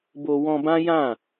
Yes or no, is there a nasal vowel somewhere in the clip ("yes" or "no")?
yes